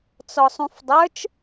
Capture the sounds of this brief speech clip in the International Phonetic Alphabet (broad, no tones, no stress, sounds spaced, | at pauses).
t͡s ɔ sˤ ũ f dˤ ə˞ t͡ʃ